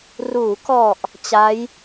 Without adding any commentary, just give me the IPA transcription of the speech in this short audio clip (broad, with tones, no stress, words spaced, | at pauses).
ruː˩˦kɔ˨˩ʔ | t͡ɕa˦˥j